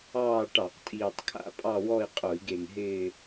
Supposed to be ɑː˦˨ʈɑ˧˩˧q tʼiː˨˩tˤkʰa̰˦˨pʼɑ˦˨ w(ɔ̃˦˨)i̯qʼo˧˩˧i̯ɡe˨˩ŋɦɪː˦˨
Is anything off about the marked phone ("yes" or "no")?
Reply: yes